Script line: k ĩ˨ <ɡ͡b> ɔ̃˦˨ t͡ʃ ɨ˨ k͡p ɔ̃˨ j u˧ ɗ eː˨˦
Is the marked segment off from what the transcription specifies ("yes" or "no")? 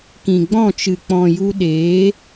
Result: no